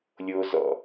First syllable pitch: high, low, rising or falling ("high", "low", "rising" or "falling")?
low